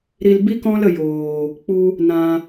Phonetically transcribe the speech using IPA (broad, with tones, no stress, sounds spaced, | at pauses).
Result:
ɾ i˧ l b i˦ k ɔ̃˦ l ə˧ j oː˨ | k͡p u˧ | n ã˧